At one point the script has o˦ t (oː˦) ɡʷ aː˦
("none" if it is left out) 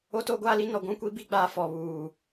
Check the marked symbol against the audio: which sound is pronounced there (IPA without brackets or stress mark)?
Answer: oː˦